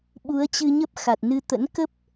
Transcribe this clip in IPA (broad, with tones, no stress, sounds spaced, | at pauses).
ɓ u˨˦ ə̯ t͡ɕ ɨ˧ ɲ ə˦˥ p̚ x a˨˩ t̚ n ɨ˧ t̪ ə̰˧˥ n k ə˦˥ p̚